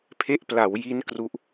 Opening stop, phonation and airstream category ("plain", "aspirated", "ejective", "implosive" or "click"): aspirated